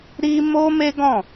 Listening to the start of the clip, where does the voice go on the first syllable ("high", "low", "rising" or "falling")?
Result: high